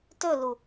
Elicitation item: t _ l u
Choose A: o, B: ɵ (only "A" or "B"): B